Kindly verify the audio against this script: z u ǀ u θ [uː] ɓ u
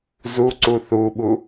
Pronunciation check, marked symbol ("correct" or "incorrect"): incorrect